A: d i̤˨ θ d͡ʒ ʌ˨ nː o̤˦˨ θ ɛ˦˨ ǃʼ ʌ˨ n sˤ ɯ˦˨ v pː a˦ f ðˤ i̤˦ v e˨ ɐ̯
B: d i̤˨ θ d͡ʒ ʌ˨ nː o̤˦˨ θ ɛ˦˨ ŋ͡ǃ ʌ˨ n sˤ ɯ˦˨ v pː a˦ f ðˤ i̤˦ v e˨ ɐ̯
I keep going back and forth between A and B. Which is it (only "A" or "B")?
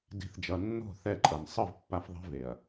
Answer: A